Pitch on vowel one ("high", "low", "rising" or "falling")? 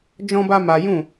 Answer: high